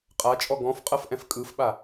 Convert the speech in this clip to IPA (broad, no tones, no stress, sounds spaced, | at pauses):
qʼ a t͡ʃʼ ɔ ɡ ɔ̃ f qʼ ɤ f ʔ ɛ̃ f kʼ ɯ f ɓ a